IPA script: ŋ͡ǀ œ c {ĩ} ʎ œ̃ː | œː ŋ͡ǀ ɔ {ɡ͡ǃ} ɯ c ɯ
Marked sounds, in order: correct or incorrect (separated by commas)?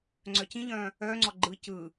correct, correct